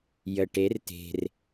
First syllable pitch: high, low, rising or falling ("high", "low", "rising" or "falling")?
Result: low